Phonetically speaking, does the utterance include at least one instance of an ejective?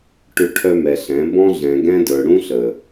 no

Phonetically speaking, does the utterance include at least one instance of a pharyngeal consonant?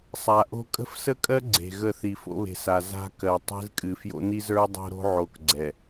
yes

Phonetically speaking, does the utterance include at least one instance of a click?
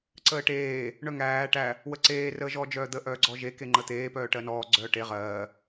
yes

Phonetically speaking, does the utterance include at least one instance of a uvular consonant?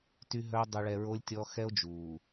no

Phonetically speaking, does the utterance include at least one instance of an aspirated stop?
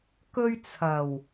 yes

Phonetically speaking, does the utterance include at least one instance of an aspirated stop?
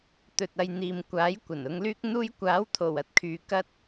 yes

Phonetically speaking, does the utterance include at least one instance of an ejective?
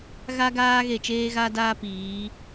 no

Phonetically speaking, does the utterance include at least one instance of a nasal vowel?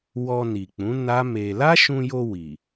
yes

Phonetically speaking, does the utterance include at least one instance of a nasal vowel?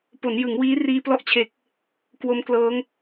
no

